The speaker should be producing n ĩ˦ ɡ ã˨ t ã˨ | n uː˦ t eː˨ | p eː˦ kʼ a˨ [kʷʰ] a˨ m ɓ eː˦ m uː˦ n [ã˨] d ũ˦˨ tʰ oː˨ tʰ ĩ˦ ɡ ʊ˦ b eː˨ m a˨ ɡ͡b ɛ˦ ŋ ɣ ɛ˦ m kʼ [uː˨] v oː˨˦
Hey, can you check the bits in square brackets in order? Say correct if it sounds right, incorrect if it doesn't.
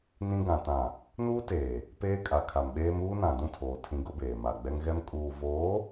incorrect: kʰ, correct, correct

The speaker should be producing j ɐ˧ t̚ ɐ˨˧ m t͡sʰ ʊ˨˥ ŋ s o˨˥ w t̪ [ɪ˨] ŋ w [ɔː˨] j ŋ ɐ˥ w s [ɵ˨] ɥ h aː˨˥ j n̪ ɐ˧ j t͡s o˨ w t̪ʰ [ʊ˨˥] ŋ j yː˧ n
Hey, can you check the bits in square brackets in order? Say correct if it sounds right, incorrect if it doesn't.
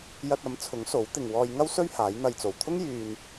correct, incorrect: ɔː˧, incorrect: ɵ˥, incorrect: ʊ˥

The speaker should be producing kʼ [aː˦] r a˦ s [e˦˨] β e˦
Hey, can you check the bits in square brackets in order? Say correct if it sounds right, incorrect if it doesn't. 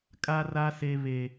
incorrect: a˦, incorrect: e˦

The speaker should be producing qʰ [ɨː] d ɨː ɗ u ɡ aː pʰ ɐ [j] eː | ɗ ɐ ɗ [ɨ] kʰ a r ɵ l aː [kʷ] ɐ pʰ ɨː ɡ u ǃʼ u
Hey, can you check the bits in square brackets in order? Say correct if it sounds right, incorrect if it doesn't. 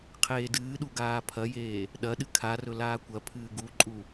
incorrect: eː, correct, correct, correct

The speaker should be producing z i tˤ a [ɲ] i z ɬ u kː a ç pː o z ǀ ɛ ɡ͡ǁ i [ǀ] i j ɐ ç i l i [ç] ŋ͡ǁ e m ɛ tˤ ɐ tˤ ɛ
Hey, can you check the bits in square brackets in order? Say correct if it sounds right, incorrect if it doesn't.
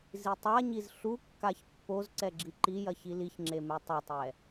correct, incorrect: ǃ, correct

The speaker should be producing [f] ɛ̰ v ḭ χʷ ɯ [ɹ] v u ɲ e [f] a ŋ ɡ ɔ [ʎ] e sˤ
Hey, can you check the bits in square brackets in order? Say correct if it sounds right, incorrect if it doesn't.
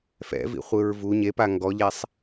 correct, correct, incorrect: p, correct

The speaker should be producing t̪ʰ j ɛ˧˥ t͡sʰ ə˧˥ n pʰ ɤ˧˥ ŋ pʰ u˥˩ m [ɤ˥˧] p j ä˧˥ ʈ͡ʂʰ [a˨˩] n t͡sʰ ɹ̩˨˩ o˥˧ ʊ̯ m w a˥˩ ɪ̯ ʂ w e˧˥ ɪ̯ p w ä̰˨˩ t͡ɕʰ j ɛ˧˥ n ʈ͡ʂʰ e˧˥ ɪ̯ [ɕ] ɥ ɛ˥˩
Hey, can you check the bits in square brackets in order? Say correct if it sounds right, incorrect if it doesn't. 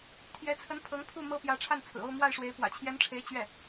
incorrect: ɤ˥, incorrect: a˥˩, incorrect: t͡ɕ

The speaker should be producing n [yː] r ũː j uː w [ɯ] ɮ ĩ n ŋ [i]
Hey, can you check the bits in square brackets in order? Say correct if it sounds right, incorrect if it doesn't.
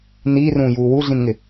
incorrect: iː, incorrect: u, incorrect: ɪ

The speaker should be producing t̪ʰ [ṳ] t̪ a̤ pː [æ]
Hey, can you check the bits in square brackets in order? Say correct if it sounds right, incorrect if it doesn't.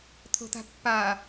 incorrect: o̤, incorrect: a

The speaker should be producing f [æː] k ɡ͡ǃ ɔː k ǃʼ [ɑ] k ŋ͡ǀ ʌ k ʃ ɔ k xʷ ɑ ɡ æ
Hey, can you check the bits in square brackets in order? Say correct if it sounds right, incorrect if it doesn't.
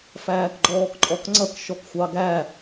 correct, incorrect: ɔ

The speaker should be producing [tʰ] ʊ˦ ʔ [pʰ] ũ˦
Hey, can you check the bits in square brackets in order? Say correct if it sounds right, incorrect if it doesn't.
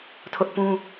correct, incorrect: p

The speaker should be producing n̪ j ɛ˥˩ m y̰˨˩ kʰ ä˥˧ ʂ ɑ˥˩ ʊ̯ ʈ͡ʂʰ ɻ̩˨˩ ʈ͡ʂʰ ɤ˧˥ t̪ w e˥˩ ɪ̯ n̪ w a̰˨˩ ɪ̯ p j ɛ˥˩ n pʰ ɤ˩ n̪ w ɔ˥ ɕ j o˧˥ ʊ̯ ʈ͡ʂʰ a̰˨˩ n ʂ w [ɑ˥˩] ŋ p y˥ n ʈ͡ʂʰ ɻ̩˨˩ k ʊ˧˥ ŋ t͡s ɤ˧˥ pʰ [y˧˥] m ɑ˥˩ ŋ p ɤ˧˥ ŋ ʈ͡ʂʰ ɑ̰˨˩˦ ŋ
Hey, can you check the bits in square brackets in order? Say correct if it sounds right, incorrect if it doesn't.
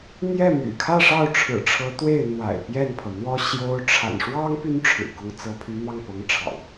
incorrect: ɑ˥, correct

